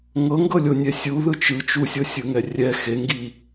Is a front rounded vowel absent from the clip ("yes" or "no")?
yes